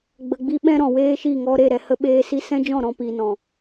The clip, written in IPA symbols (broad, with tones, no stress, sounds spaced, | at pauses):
ɡ͡b ə˨ ɡ͡b i˧ ɓ ɛ̃˦ ɾ ɔ̃˨ w eː˦ ʃ i˦˨ ŋ ɔ˧ ɾ e˦˨ ɾ ɛ˧ h ə˧ ɓ eː˦ s i˦ s ɛ̃˦ d͡ʒ ɔ̃˦˨ ɾ ɔ̃˧ p i˧ n ɔ̃˨